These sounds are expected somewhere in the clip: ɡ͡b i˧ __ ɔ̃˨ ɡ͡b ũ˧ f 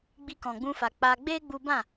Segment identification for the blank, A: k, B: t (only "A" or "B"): A